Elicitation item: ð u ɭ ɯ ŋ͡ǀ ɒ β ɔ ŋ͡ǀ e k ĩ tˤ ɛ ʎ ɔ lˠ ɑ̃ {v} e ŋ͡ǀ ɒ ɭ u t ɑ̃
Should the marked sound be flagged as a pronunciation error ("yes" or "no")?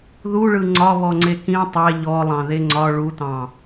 yes